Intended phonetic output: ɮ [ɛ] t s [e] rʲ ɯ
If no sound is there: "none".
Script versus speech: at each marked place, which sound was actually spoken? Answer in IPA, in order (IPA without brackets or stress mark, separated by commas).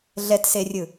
ɛ, e